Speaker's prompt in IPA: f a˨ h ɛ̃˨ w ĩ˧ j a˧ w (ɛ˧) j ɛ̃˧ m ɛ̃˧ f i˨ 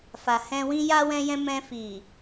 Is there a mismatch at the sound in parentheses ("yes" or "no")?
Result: yes